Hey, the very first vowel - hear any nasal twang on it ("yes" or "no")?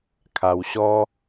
no